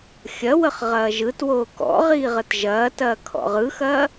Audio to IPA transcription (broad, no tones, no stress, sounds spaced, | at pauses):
xʲ ɐ w ə χ ʁ ɐː ʒ ɯ t w oː k ɔ̰ ʁ iː ʁ ə t ʒ ɐː t ɐː kʰ ɔ̰ ʁ ɯ x ɐː